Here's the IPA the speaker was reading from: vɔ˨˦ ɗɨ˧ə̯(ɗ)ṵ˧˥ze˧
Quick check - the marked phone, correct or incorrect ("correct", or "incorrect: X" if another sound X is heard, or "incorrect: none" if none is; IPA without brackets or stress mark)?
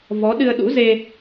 correct